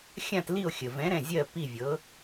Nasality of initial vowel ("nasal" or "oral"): nasal